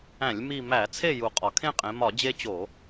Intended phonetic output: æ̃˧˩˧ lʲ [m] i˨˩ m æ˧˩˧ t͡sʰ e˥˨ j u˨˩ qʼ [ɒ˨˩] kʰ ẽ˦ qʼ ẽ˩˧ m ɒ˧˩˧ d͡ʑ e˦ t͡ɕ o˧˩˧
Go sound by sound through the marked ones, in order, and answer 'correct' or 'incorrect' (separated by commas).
correct, correct